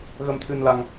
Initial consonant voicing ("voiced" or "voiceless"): voiced